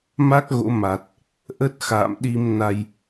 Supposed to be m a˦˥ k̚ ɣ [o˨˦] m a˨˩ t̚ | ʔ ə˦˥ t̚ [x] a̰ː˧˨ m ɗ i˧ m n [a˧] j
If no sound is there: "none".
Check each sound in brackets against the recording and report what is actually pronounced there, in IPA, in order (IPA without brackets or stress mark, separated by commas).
o̰˧˥, x, a˧